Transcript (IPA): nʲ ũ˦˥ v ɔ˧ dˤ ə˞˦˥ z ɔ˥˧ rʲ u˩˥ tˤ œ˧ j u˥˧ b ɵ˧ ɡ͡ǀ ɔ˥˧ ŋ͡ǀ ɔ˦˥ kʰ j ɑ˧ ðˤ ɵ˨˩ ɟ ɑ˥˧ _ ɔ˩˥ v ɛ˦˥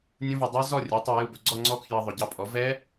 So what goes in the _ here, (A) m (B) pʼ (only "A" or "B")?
B